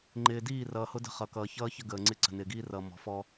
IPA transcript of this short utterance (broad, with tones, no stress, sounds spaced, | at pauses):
ŋ͡ǃ ɪː˨ d iː˦˨ r ʌː˨ h ʊ˦ d ə̤˦ χ ʌ˨ k ʌː˨ ç ʌː˦ ç ə˦ ɡ əː˨ ŋ͡ǀ ɪ˦ ǀ ə̤˨ n ɪː˨ ɡ iː˦ r ʌː˨ m ɔ̤˨ f ɔ˦